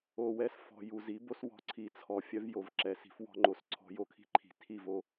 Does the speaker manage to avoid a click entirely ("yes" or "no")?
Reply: no